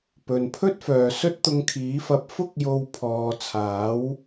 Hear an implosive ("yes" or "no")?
no